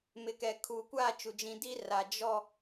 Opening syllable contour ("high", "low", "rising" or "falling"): low